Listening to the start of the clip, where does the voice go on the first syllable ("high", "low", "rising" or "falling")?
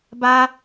high